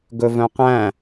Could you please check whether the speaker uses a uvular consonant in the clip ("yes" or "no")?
yes